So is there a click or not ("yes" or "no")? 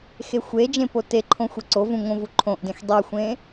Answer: yes